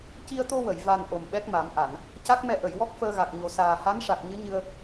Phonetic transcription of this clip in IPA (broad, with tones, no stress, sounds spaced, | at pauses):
c i˧ ə̯ t̪ o˧ w ə˨˩˨ j v a˨˩ n ʔ o˨˩ m ɓ ɛ˦˥ k̚ m a˨˩˦ m ʔ a˨˩˨ n | c a˦˥ k̚ m ɛ˧ ʔ ə˨˩˨ j w ɔ˦˥ k̚ f əː˧ ɣ a˨˩ k̚ ɲ o˨˩ s aː˨˩ h a˧˥ n ʂ a˨˩ k̚ ɲ ɨ˧˥ ɲ ɨ˧ ə̯